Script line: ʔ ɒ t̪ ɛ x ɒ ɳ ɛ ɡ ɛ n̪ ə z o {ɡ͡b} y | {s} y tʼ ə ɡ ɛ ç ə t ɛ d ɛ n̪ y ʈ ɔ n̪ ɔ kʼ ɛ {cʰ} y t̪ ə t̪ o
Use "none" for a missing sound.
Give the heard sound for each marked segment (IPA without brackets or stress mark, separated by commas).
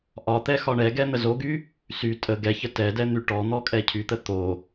ɡ, s, cʰ